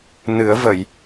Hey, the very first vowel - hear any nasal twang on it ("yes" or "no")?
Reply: no